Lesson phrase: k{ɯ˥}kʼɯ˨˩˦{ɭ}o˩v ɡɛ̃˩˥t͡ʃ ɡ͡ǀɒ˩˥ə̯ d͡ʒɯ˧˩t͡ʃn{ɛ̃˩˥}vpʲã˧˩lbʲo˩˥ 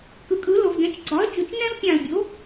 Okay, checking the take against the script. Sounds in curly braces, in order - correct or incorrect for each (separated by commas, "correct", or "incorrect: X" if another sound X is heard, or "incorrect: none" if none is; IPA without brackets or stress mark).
incorrect: ɯ˩, incorrect: l, incorrect: ɛ̃˥